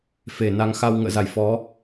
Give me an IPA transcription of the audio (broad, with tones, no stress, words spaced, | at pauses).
fe˧˩ na˨˦ŋxa˧w ŋə̰ː˧˨za˧˩j fɔ˨˦